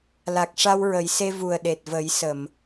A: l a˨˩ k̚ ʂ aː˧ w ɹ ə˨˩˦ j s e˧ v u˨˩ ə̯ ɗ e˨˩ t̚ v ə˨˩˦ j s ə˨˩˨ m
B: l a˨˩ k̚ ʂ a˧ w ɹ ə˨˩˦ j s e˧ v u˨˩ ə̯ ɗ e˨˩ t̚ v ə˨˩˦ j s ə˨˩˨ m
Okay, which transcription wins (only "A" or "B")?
B